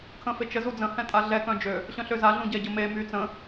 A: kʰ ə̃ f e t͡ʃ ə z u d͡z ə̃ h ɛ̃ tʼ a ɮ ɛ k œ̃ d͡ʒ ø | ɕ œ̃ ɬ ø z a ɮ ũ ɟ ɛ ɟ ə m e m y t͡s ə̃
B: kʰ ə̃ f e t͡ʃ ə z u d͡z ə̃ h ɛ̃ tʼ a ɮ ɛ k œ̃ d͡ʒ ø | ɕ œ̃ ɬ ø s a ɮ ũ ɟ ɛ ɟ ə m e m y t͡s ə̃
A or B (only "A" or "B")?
A